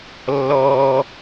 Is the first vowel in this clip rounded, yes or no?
yes